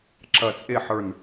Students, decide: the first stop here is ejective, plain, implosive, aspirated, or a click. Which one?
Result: click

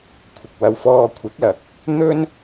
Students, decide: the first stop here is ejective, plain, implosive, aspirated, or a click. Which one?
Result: aspirated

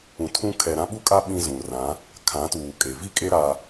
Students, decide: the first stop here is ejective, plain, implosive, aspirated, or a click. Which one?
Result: aspirated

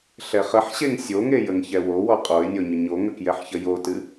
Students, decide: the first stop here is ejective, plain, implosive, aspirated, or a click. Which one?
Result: ejective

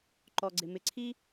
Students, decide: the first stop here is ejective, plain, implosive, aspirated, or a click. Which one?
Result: click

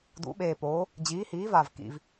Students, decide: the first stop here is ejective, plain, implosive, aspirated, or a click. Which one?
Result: plain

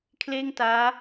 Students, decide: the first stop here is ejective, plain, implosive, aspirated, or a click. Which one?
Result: aspirated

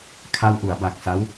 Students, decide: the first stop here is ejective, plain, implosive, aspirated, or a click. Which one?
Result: aspirated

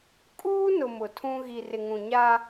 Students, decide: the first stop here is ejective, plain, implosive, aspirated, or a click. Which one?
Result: ejective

